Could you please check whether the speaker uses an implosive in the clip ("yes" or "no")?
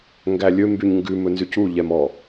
no